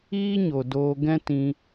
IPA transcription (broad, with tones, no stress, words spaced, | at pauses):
iː˦ɲo˨ doː˧ ɡɛ̃˦ tĩ˧